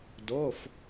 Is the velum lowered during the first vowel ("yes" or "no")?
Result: no